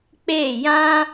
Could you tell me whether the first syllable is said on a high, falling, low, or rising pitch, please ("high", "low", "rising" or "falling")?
falling